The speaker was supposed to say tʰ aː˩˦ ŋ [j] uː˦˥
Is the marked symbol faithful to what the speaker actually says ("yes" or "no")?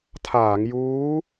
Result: yes